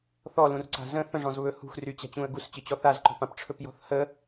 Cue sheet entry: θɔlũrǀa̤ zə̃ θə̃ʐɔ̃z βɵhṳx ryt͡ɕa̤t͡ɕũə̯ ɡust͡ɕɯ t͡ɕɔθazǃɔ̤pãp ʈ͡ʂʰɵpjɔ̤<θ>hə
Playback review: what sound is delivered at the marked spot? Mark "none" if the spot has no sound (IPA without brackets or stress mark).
θ